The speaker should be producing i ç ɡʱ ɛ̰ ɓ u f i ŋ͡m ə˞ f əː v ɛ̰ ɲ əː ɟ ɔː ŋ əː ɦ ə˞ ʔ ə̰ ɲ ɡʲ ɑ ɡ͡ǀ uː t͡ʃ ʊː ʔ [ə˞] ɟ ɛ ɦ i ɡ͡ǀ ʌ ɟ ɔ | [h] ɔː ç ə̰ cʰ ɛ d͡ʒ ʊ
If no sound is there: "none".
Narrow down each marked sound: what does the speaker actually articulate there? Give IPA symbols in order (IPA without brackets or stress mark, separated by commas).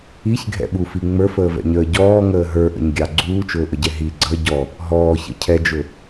ə, ɦ